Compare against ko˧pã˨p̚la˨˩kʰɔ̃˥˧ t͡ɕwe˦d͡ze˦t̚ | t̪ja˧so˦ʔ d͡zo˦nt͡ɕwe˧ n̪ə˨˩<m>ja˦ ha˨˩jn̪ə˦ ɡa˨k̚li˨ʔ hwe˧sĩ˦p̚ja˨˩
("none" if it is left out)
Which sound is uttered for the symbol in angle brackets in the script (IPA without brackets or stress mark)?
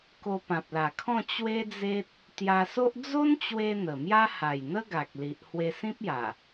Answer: m